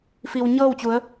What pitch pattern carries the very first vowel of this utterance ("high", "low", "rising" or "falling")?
low